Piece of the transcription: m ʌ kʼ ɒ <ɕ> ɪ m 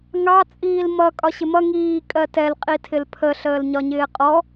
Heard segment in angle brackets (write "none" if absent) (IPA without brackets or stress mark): ɕ